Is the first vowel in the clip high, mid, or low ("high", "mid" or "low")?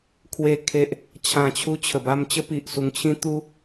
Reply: mid